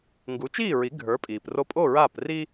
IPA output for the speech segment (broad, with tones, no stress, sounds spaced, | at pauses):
ŋ ɡ u˩˥ t͡ʃ iː˥˩ ɹ i˩˥ ɡʱ ə˞˩˥ pʼ iː˩ p r o˧ pʼ o˥˩ ɹ aː˥˩ p r iː˥